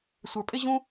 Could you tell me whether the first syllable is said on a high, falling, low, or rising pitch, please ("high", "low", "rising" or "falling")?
low